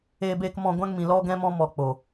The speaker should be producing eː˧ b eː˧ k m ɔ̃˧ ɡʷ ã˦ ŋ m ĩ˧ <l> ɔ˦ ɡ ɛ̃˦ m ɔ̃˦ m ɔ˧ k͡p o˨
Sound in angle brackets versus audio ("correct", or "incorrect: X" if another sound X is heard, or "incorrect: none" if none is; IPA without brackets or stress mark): correct